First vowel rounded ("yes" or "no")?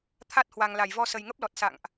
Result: no